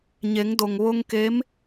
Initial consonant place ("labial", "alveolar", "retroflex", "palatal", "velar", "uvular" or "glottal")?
palatal